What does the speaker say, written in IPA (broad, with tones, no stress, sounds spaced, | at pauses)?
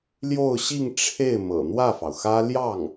l j o˥˧ ʊ̯ ɕ i˥˧ ŋ ʈ͡ʂʰ e˥˩ ɪ̯ m ɤ̰˨˩ n̪ w ä˥˩ f ɑ˩ ʊ̯ x ä˥ l j ɑ˥˩ ŋ